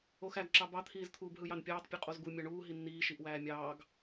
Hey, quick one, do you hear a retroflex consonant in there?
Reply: yes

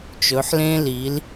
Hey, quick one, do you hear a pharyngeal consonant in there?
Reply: yes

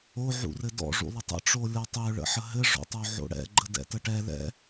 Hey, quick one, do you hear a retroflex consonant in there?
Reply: yes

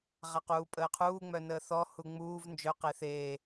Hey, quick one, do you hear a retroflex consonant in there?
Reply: no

